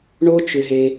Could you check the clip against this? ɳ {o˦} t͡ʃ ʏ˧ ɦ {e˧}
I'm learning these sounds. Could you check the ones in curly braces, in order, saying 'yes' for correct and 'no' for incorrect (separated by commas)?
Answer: yes, yes